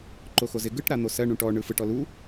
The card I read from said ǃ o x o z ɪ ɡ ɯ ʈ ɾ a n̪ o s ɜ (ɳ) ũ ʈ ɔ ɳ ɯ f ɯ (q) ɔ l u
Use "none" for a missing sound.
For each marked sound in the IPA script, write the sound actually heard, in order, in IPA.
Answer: ɳ, ʈ

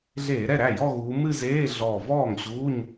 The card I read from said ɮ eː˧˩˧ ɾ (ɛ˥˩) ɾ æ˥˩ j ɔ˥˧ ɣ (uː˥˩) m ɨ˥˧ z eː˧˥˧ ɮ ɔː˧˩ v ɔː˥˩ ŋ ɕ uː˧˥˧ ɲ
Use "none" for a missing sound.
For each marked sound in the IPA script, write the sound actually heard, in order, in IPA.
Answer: ɛ˥˩, uː˨˦

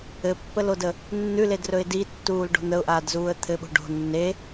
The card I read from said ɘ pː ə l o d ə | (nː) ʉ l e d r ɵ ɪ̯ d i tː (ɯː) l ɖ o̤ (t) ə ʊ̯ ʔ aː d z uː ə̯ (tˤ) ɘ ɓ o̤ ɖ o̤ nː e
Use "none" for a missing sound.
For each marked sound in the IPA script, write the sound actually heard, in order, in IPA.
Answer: nː, uː, n̪, t̪ʰ

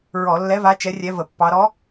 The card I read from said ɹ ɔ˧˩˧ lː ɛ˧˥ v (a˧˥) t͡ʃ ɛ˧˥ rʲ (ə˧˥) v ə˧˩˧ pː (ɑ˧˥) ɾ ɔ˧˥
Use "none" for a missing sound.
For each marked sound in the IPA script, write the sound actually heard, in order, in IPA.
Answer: a˧˥, ɛ˧˥, ɑ˧˥

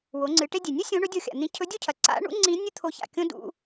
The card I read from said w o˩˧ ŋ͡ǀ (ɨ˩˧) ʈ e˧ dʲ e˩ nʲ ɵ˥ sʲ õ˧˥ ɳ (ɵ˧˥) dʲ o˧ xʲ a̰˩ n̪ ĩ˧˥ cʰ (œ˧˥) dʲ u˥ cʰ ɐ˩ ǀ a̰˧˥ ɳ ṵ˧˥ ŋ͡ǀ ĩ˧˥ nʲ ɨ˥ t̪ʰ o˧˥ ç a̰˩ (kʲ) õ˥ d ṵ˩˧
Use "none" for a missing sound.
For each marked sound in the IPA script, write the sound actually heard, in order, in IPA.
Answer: ɨ˩˧, ɵ˧˥, ɵ˧˥, kʲ

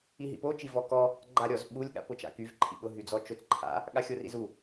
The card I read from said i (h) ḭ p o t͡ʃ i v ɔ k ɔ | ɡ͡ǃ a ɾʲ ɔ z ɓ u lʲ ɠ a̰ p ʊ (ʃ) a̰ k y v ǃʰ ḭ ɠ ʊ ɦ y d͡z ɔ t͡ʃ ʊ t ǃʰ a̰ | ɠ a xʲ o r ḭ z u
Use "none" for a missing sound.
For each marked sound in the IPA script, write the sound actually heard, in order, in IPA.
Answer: ɦ, t͡ʃ

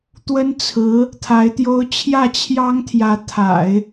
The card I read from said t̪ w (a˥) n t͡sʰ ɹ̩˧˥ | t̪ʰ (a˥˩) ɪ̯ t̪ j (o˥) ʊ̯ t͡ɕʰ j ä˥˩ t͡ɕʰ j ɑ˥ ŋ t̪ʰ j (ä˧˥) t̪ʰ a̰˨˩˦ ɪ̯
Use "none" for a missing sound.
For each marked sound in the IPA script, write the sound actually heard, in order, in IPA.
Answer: ə˥, a˧˥, o˥, ä˧˥

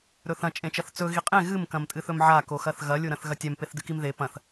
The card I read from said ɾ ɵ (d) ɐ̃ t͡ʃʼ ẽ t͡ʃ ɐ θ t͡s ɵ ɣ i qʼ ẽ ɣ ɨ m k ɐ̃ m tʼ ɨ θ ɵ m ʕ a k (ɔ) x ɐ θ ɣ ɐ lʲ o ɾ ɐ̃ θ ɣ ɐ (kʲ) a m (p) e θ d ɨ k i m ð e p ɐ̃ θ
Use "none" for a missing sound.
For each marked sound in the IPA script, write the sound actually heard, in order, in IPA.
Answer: θ, o, tʲ, p

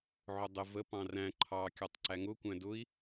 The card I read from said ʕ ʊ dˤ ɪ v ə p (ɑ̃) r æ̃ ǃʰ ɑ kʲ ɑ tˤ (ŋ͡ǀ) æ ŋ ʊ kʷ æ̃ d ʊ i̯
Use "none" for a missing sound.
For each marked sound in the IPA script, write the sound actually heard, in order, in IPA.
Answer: ɑ̃, ǀ

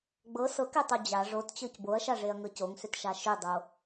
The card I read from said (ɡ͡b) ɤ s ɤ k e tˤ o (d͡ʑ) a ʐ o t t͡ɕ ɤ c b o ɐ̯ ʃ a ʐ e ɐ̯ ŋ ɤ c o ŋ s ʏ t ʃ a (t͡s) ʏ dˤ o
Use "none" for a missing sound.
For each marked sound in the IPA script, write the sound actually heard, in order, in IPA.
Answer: ɡ͡b, d͡ʑ, ʃ

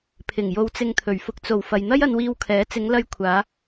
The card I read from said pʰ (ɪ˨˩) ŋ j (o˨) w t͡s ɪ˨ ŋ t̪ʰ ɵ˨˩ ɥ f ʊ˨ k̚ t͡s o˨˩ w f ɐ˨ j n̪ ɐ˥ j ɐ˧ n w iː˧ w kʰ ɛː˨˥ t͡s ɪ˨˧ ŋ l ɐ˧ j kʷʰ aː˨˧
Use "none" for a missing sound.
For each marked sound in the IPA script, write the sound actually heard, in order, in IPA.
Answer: ɪ˨˩, o˨

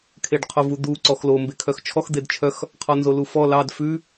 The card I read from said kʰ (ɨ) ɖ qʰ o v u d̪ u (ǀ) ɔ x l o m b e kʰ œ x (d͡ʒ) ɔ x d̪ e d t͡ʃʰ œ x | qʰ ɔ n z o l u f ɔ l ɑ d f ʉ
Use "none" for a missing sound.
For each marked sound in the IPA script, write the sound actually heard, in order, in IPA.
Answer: e, ǀ, t͡ʃʰ

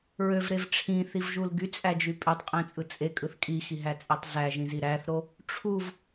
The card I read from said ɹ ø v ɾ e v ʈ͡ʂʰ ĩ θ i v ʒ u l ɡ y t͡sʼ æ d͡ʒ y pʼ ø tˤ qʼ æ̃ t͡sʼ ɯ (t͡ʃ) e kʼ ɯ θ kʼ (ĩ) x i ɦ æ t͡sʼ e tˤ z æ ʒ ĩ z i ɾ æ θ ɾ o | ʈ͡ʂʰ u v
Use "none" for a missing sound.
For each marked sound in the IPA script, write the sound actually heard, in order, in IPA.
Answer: t͡sʼ, i

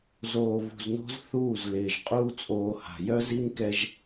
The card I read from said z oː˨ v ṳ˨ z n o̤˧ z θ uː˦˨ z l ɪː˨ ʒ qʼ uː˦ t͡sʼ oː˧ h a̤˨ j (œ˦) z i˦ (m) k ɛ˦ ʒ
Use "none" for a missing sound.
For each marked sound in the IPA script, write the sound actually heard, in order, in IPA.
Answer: œ˦, m

